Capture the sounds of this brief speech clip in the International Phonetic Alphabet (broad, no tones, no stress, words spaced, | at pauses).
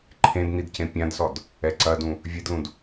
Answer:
ǃʰẽdnid cẽpʲãdsɔd | ɛǀɐdũ | vʲedlũd